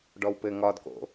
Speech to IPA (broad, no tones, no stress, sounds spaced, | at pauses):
ɖ ɔ w p ɘ ŋ ɒ d k o̰